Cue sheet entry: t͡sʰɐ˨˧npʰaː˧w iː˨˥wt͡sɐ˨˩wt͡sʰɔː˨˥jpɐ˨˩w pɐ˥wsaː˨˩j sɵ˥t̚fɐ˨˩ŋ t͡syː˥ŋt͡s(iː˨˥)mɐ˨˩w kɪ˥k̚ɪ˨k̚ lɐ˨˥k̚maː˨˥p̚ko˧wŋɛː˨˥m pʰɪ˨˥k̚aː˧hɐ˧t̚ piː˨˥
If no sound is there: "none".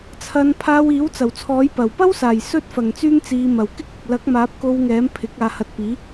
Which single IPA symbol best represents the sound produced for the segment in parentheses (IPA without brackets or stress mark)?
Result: iː˨˧